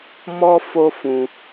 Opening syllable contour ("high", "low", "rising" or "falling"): high